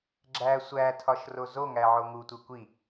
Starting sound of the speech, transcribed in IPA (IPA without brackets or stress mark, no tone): ɡ͡ǁ